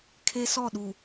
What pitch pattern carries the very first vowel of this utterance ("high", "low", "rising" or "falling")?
high